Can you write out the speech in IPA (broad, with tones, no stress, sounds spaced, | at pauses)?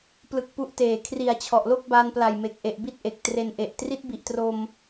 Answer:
p l ɯ˦˥ k̚ p u˦˥ ʔ t eː˨˩ kʰ r i˨˩ a̯ t͡ɕʰ ɔ˨˩ ʔ l o˥˩ k̚ b a˧ n p l a˨˩ j m e˨˩ k̚ ʔ e˨˩ ʔ b i˥˩ t̚ ʔ e˨˩ k̚ t r e˧ n ʔ e˨˩ ʔ t r i˦˥ t̚ b i˨˩ ʔ t r o˧ m